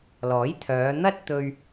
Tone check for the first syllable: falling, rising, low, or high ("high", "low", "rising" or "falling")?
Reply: rising